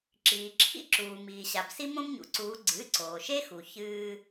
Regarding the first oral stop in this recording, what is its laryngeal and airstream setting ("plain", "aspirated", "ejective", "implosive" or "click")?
click